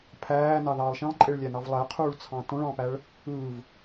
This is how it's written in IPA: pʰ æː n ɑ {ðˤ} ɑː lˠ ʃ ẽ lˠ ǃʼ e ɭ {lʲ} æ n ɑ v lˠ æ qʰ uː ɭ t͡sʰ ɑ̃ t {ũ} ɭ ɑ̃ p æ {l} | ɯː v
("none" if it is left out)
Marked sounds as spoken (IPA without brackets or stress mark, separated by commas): ð, lʲ, õ, ɭ